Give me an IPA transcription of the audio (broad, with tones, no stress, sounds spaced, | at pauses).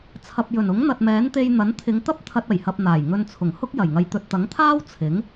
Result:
t͡sʰ ɐ˨ p̚ j ɵ˨˩ n ʊ˨˥ ŋ n̪ ɐ˨ t̚ m ɛː˨˥ n t̪ e˧ j n̪ ɐ˨˥ n t̪ʰ ɪ˨˧ ŋ t̪ ɐ˥ p̚ t̪ʰ ɐ˧ t̚ ɐ˨˩ j h ɐ˧ p̚ n̪ aː˨˩ j ŋ ɵ˧ n t͡sʰ ʊ˨˩ ŋ h ʊ˥ k̚ j ɐ˨˩ j ŋ ɐ˨ j t̪ ɵ˨ t̚ t̪ ɐ˨˥ ŋ t̪ʰ aː˥ w t͡sʰ ɪ˨˥ ŋ